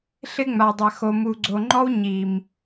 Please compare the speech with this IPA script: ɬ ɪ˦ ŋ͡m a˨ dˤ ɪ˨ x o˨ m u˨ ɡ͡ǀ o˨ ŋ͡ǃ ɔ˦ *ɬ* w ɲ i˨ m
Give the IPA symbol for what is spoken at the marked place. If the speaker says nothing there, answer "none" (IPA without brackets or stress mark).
none